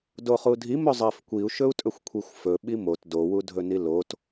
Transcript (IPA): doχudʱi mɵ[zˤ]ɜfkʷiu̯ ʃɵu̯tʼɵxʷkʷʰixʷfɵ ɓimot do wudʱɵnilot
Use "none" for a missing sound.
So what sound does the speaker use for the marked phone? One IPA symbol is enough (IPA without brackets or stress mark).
zˤ